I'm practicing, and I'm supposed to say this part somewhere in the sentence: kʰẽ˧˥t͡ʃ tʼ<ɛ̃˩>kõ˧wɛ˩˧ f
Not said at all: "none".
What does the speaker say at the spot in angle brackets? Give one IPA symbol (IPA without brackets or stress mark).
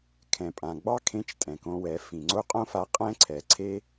ɛ̃˩